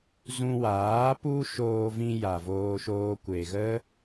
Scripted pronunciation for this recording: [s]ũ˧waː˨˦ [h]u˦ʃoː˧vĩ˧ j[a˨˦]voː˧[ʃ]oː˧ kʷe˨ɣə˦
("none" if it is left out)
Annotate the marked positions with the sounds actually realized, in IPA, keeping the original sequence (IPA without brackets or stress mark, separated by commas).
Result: z, p, a˨, ʃ